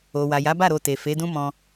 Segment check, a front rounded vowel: absent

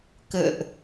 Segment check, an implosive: absent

